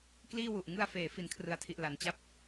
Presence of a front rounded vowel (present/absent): absent